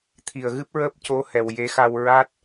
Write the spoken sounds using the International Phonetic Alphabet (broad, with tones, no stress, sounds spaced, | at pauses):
t̪ʰ i˨˩ ə̯ ɣ ɨ˦˥ p̚ ɹ əː˦˥ p̚ c o˧˥ h ɛ˨˩ w j e˧˥ x a˧ w ɹ a˦˥ t̚